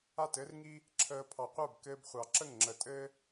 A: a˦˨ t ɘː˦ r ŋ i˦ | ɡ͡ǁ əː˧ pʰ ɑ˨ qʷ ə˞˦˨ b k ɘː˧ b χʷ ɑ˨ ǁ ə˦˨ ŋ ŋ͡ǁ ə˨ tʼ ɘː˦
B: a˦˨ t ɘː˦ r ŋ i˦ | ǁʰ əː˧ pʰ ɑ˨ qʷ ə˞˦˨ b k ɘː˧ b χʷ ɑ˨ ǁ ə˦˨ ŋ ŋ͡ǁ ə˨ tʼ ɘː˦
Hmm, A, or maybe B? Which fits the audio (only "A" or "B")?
B